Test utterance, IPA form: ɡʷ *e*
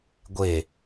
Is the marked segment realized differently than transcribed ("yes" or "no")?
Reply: no